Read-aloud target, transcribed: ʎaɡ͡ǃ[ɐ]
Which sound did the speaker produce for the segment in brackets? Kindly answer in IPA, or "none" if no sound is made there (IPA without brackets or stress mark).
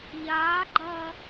ɐ